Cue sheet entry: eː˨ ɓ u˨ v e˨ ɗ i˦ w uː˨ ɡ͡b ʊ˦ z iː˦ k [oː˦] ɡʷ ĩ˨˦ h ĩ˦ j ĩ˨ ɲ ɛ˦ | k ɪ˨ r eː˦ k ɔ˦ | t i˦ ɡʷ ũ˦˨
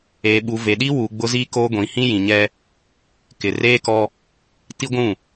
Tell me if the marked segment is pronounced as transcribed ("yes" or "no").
yes